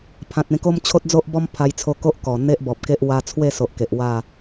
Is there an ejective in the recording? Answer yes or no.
no